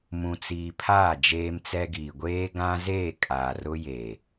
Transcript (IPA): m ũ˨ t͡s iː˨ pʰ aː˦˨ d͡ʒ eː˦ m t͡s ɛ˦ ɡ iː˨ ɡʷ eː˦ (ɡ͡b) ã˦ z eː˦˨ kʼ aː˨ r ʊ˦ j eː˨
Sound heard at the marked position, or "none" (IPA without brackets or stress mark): ɡ